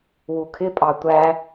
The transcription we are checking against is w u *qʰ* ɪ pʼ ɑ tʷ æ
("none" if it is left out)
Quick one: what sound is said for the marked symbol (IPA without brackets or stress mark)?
kʰ